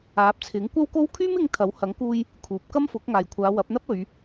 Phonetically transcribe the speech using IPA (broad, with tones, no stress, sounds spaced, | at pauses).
aː˨˥ p̚ t͡sʰ ɪ˨˥ ŋ kʷ ɐ˥ w k o˥ w kʰ yː˥ m ɪ˧ ŋ t̪ʰ ɐ˨˥ w h ɐ˨˥ ŋ k uː˧ j | kʰ uː˨˥ p̚ k ɐ˥ m f ʊ˨˥ k̚ ŋ aː˨ j kʷʰ aː˨˧ w ɐ˨˥ p̚ n̪ ɐ˥ p̚ ɵ˨˧ ɥ